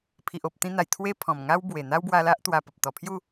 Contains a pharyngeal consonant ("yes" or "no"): no